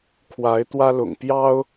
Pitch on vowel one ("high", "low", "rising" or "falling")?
rising